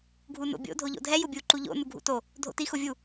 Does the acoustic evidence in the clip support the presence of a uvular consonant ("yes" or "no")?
no